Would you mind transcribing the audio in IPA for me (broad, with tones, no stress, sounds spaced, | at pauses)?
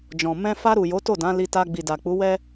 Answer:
d͡ʒ ɔ̃˨ m ɛ̃˧ f a˧ ɾ u˨ j o˨˦ t o˦˨ d ã˨˦ l i˧ t a˧ ɡ͡b i˨ d a˨ k͡p u˨˦ w ɛ˦